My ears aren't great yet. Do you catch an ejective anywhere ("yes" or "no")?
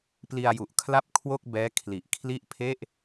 no